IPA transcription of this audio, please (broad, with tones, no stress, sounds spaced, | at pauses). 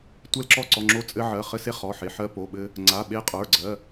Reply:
tʷ ɛ˧ l ǁ ɔ˧ ǀ ɔ˩˧˩ ŋ͡ǁ o˧ t͡sʼ ɘ˧ ʕ ɜ˩˧˩ χ ɘ˧ s e˧ χ ɔ˩˧˩ ħ e˩˧˩ ħ ɜ˧ p o˩˧˩ ɓ ɘ˧ | ŋ͡ǀ a˩˧˩ ɓ e˧ qʼ ə˞˩˧˩ ɡ͡ǀ ɜ˩˧˩